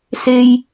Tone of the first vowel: low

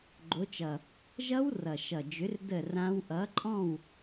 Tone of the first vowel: rising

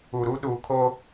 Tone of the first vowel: low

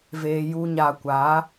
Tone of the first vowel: low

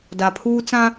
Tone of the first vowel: low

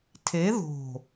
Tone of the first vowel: rising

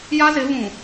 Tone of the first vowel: high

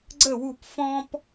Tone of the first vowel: falling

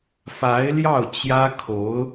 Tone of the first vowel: rising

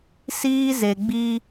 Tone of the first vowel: high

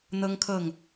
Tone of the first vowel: high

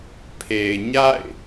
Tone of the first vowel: low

